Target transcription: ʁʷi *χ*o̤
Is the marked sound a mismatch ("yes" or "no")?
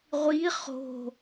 no